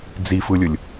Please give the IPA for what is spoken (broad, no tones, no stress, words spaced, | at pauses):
d͡zifɯlʲɯlʲ